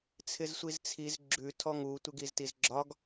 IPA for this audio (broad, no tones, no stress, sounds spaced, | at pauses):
t͡sʰ ɪ z sʷ i z t͡sʰ i z ɡ͡ǁ ʉ tʰ ɔ ŋ u tʷ ɪ ɡ i z t i z ɡ͡ǁ ɒ ɡ